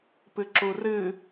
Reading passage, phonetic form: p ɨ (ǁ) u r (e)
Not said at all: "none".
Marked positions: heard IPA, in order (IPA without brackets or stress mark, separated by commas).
ǁ, ɨ